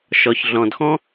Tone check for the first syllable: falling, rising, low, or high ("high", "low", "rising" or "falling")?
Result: low